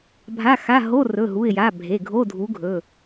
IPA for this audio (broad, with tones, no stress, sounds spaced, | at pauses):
bʱ a˧˥˧ x a˧˥˧ ɦ o˧˥˧ r ɵ˩˧˩ ɦ u˩˧˩ ɪ̯ j a˩˧˩ bʱ e˩˧˩ ɡʱ o˧˥˧ dʱ u˨˥ ɡʱ ɵ˩˧˩